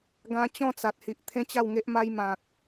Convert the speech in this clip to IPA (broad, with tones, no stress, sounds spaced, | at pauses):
ɡ ã˧ t͡ɕ ɔ̃˥˧ t͡s a˨ t̚ h i˨ ʔ t̪ʰ ẽ˦ t͡ɕ a˥˧ w ŋ e˦ ʔ m a˦ j m ã˨ k̚